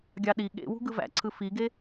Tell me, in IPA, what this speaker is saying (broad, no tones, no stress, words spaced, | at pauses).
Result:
ɡʲɑɗi ɠḛwṳ ɡɯvæ̰ǀʰɯ fiɡe